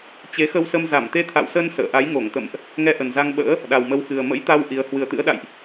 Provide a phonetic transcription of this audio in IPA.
t͡ɕe˨˦xə˧wsə˧m za˧˩mt̪e˧t̪ʰa̰˧˨wsə˧n sə̰ː˧˨ ʔa˨˦jŋo˧˩ŋt̪ə̰˧˨mʔ | ŋɛ˧ʔə˨˩nza˧ŋɓə̰ː˧˥ | ɗa˨˩wmə˨˦wxɨ˨˩ə̯ mə̰˧˥jt̪a˧w ʔi˨˦ə̯ hwɨ˨˩ə̯t̪ɨ̰˧˥ə̯ɗa̰˧˨jʔ

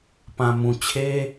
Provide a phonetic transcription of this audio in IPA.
pã˨mũ˨t͡ɕʰe˦

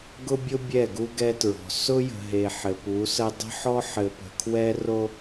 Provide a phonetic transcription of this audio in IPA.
ɡʊ˦bʲʊ˦ bʲɛ˦˨ɡu˦ɡɛ˦tɹɔ̤˨ sʊ˦jə̤˨ɦe˨ ħɘ˨pu˨˦sə˦ dˤə̤˦ħɔ˦ ħɘ˨pə̤˨kʰwɛ˦ ro˦

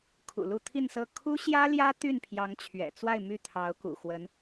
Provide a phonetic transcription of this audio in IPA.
kʰṵ˨˩ lu˥˧t̪ʰi˥˧nsɤ˥˩ kʰu˥ɕjä˥ljä˥ t̪y˥˩npʰjɑ˧˥ŋt͡ɕʰɥɛ̰˨˩ t͡swa˥˧ɪ̯my˥˩ t̪ʰɑ˧˥ʊ̯kṵ˨˩xwə˧˥n

